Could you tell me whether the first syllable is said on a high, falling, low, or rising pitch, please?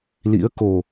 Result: rising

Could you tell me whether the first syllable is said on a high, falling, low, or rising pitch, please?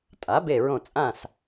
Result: rising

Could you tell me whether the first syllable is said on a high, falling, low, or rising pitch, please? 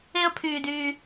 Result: high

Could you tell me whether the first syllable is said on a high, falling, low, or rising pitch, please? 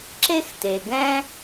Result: high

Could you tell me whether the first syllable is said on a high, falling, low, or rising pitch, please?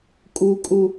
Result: low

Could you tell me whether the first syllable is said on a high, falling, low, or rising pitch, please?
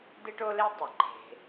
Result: high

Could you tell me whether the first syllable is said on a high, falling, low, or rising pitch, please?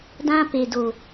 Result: high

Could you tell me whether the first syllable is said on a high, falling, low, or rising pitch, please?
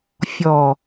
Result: low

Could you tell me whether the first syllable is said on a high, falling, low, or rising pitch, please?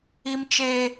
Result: high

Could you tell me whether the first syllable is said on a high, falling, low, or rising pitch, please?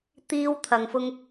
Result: high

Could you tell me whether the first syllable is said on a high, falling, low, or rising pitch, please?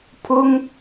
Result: high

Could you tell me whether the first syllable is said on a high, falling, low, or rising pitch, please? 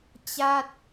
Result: falling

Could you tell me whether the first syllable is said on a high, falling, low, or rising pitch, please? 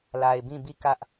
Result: low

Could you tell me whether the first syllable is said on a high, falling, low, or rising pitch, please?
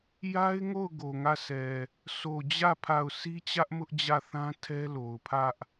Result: high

